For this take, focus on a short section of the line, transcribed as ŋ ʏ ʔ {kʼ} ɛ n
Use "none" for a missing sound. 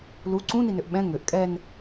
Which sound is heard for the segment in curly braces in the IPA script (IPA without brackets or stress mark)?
kʼ